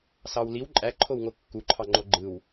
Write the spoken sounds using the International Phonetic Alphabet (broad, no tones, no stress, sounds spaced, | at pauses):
s ɑ w l i w ǃʼ æ ǃʰ o w ŋ o kː u ǃʰ ɑ ŋ͡ǃ o ɡ͡ǃ ɯ w